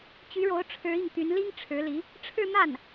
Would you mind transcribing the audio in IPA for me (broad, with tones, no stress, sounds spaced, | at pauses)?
t͡ɕ y˧˥ ɻ o˧˥ ʊ̯ ʈ͡ʂʰ ɻ̩˧˥ i˥˩ ŋ t̪ y˧˥ n l i˥ ŋ ʈ͡ʂʰ ɻ̩˧˥ l i˧˥ | ʈ͡ʂʰ ɻ̩˥˧ n̪ a˥˩ n